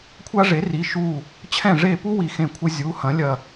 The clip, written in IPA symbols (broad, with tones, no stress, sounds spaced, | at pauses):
kʷʰ a˦ ʐ e˩˥ r i˩˧˩ ʃ u˧˩ | t͡ɕʰ ɛ̃˧˩ ʐ e˧˩ p u˦ w i˧˩ x ẽ˧˩ kʷʰ ɘ˦ zʲ u˩˧˩ h ɐ̃˩˥ lʲ ɐ˧˩